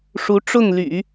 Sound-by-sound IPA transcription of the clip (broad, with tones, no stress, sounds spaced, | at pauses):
ʂ u˧˥ ʈ͡ʂ ʊ˥˩ ŋ l y̰˨˩˦